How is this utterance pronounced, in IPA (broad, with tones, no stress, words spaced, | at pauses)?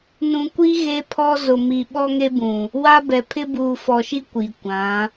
nũ˨kʷi˦ ɣe˦pʰɔ˦ zʊ˨mi˨ ɓɔ˦ŋe˦bũ˨ | wa˦bɛ˨ pʰɪ˦buː˨fɔ˨ʃi˦ kʷi˨ kʷã˨˦